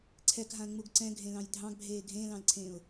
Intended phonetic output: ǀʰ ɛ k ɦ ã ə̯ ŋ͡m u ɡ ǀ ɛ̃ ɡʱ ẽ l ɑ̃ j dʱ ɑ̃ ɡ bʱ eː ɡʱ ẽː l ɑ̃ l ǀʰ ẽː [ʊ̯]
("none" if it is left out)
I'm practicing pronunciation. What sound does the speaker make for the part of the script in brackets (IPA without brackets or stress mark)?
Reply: ʊ̯